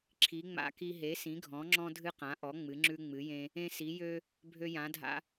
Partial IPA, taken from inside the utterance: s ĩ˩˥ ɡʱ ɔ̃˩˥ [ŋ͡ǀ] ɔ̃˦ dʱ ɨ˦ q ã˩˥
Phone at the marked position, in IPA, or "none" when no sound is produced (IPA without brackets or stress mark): ŋ͡ǁ